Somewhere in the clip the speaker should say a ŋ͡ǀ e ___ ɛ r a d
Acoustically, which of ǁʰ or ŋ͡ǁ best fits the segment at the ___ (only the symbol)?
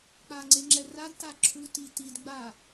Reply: ŋ͡ǁ